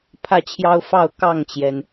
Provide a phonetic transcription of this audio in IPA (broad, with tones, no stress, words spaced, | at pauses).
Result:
pʰä˥˨t͡ɕʰjɑ˦ʊ̯fɑ˥˨ʊ̯ kɑ˥˨ŋt͡ɕjɛ˩n